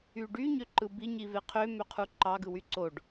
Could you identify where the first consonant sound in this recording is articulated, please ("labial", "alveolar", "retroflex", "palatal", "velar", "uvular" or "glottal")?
retroflex